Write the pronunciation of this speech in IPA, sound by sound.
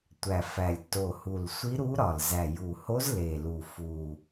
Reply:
tʷ æ˨˩ f æ˨˩ lʲ t o˨˩ h u˨˩ l sʷ i˧˥ ɾ u˧˥ ɾ ɒ˨˩ l z æ˨˩ j u˨˩ h o˧˥ z l e˨˩ l u˨˩ f u˨˩

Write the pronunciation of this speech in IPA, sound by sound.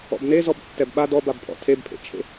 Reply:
ɔ̰ b n e z ɔ b tː ɛ b ɓ a d ɔ b a b pʰ ɔ̰ tʰ e b pʰ ḛ t͡ʃʰ ḛ

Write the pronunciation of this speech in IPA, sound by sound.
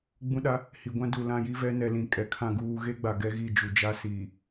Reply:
ɡ͡b ũ˦ ɗ a˦ | h i˨ ɡʷ ã˦ d u˨ l ã˦˨ j i˦ v ɛ˦ n ɛ˨ l ĩ˨ kʼ ɛ˨ kʰ ã˦˨ ɡ uː˦ ɣ e˦ ɡ͡b a˨ ɡ ɛ˦ ɣ i˦˨ d͡ʒ u˨ d͡ʒ a˦ s iː˨

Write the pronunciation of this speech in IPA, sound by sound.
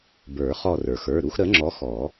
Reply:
b ə˞˨˩˦ χ ɔ˦˨ r ə˞˩ x ə˞˩˧˩ ɾ u˦ x ɾ ə˨˥ ŋ͡ǁ ɔ˨˥ x ɔ˨˩˦

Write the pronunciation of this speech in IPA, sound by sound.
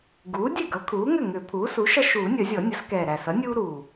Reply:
ɡ uː˩˥ dʲ ɛ˥˩ ɡ ʌ˩˥ kʰ uː˩˥ ŋ ʏ˥˩ ŋ ʏ˨˩˦ pʰ uː˩˥ s u˩˥ ʃ ʌ˦ ʃ uː˨˩˦ nʲ ʌ˨˩˦ zʲ ɔ˨˩˦ nʲ ʌ˩˥ s k ɛː˨˩ ɾ æ˨˩ s ʌ˩˥ nʲ uː˦ ɾ uː˨˩

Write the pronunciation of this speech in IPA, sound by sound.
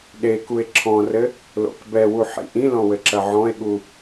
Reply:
ɗ e k u e̯ ǁʰ ɔ̃ r ɘ | l o̰ k b ɛ w u ħ ḭ ʔ ĩ l ɔ̃ w ɘ ǁ ɐ ʕ ɔ̃ e̯ ɠ u

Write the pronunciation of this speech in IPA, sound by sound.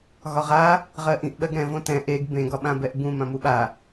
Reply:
ɣ ɒ ʁ a | ʁ ɜ ʔ ĩ ʔ ɓ ɜ ɡ ɾ ɛ̃ v õ t ɛ̃ ʔ e ɡ b ẽ ɡ ɒ ɓ ã b ɛ ʔ b ũ m ã m u ɓ a

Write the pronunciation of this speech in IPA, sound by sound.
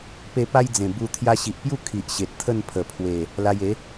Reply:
p e˧ p a˦ j d͡z ẽ˨˩ b u˧ t̪ʰ j a˧ ɕ i˨ ʔ p j u˥˧ kʰ i˨ ʔ ɕ e˨ t̚ t̪ʰ ə˥˧ n pʰ ə˨˩ pʰ w e˨˩ | l a˧ j e˨˦

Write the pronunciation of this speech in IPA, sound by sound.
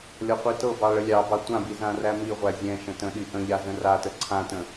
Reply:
lʲ ɒ qʷ i t ɤ b ɑ ɭ ə lʲ ɑ b ɑ tʷ ã b i z ã r æ m i ʁʷ æ zʲ ɛ̃ ʃ ə̃ t ə̃ ɗ i ʔ ə̃ ʎ a z ə̃ r a t ə ǀʰ ã t ə̃

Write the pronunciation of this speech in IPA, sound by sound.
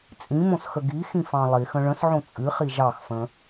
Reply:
t͡sʼ ĩ m õ s x ə ɡ i x ĩ f ɑ̃ lˠ i x ə̃ ɭ ə̃ s ʕ õ t͡sʼ ɨ χ i ʒ ɑ x f ə̃

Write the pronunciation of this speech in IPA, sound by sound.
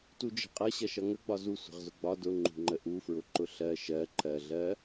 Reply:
t u d͡ʒ ə̤ qʼ ʌ ɕ ʌ ʃ ʌ ŋ ə ɡ͡b ɒ z u sʷ ə̤ ʁ z ʊ ɡ͡b ɒ d ʊ ŋ͡ǃ ṳ ŋ͡ǃ ə ʔ u f ɹ ʊ ǃ ʊ ɬ ɜ ʃ ɜ ǃ ɜ ɮ ɜ

